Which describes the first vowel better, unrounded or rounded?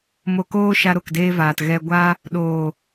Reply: rounded